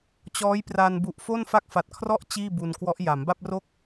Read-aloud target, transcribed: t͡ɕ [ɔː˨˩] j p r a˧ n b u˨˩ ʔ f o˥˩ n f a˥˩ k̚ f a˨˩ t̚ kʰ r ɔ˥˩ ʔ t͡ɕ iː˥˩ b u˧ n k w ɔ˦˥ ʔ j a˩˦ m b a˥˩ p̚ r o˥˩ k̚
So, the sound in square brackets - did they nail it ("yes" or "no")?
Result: no